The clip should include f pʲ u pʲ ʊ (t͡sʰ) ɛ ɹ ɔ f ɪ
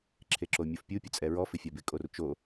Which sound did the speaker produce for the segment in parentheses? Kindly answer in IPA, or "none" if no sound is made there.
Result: t͡sʼ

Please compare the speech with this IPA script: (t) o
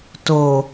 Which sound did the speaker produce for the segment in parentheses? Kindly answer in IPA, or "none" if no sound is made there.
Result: t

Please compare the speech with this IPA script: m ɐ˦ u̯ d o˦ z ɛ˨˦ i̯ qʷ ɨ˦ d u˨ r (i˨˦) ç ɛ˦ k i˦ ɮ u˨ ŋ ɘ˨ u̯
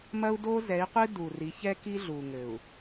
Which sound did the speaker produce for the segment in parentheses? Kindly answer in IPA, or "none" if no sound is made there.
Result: i˨˦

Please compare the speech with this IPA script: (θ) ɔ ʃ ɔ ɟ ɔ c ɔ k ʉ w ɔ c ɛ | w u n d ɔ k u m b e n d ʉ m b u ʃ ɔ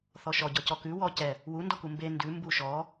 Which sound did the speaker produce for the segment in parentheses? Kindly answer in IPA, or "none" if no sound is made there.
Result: θ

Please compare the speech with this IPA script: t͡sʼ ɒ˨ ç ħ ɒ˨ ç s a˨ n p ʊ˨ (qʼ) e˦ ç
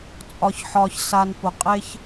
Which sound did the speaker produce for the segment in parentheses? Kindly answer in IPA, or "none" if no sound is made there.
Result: qʼ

